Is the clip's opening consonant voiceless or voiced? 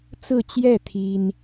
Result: voiceless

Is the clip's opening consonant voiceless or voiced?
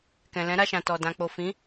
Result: voiceless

